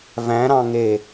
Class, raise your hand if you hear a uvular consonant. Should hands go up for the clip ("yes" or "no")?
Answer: no